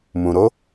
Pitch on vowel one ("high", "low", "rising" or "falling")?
low